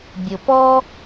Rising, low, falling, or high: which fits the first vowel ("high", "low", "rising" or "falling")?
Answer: low